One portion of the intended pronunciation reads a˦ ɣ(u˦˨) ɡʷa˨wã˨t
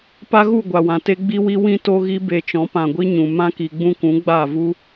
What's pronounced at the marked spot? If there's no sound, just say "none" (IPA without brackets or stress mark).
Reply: u˦˨